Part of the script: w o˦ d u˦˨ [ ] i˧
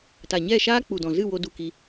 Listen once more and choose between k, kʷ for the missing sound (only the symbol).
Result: k